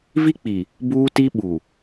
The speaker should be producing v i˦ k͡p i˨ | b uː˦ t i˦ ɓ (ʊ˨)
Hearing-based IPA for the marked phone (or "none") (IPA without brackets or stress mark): u˨